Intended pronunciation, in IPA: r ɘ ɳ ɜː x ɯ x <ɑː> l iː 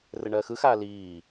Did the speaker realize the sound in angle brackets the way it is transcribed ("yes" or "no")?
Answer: no